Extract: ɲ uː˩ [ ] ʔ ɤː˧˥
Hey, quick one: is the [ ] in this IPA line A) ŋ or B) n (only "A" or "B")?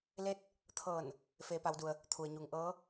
A